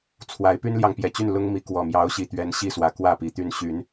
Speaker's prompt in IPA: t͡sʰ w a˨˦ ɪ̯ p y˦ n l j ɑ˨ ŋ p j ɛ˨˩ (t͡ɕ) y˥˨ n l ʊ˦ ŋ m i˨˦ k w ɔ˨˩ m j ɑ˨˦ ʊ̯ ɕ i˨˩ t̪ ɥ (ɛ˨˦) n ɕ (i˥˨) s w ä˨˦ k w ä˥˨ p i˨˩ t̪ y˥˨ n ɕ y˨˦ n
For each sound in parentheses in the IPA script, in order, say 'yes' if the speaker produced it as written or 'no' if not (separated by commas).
yes, yes, yes